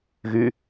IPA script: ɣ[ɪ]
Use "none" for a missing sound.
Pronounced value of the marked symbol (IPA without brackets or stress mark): y